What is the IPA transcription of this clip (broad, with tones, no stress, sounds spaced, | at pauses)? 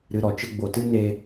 ɾ ɨ˨ ɾ ɔ˨ t͡ʃ ə˧ ɡ͡b o˨ t ɨ˦ n eː˧